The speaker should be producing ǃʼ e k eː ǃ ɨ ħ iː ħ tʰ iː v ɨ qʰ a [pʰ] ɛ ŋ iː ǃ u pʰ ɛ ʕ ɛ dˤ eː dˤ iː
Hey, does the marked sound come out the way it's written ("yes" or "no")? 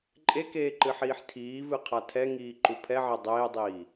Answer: no